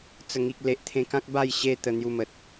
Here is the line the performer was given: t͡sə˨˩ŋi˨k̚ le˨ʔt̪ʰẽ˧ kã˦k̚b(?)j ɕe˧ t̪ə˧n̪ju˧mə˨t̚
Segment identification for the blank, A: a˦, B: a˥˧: B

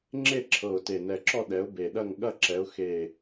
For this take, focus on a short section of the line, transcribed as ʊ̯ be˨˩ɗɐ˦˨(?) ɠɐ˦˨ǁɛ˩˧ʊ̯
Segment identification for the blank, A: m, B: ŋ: B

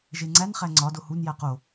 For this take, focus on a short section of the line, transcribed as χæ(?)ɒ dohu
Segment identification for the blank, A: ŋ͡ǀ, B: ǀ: A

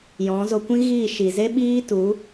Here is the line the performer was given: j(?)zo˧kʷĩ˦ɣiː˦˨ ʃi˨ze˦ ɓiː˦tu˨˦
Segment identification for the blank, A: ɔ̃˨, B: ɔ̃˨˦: B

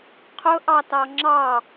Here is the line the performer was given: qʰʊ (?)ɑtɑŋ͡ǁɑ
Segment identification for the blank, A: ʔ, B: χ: A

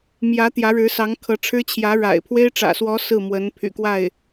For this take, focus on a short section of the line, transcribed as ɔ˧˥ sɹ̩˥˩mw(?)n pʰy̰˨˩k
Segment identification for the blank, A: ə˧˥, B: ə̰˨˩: A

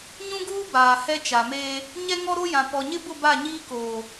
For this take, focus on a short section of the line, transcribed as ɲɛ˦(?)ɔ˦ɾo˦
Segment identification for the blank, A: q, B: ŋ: B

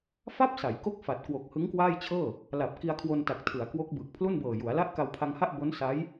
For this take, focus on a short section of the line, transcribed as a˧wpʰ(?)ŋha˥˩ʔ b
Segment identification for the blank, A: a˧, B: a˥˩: A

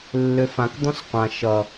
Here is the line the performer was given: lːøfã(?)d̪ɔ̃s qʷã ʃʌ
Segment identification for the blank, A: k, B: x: A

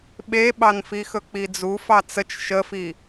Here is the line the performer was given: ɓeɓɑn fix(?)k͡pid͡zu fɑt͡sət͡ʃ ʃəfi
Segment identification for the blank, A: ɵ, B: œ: A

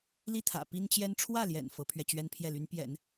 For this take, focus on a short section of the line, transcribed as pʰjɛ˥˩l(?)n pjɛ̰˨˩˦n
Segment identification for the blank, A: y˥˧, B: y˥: B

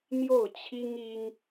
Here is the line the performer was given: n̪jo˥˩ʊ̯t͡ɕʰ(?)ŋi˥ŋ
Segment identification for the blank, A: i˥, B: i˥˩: A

